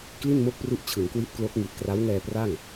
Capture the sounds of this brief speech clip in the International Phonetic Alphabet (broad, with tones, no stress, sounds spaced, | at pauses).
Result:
k l i˥˩ n m o˥˩ k̚ p r u˦˥ ʔ t͡ɕʰ ɯ˩˦ ŋ k w i˦˥ t̚ k l o˦˥ k̚ ŋ i˨˩ t̚ k r a˦˥ w ŋ ɛː˧ p r a˥˩ ŋ